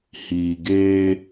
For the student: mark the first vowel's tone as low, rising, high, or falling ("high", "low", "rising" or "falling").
low